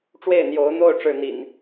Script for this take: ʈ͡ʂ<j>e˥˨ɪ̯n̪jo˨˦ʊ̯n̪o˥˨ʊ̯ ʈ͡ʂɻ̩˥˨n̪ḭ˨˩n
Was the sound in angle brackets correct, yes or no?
no